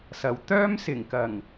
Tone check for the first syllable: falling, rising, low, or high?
low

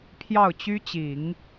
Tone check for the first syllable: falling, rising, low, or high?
falling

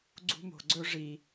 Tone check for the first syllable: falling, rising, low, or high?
high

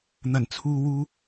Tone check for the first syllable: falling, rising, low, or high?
low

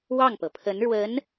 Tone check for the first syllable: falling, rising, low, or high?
falling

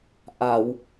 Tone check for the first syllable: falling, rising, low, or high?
low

